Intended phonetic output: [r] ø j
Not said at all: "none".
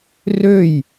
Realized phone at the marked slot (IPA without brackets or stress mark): r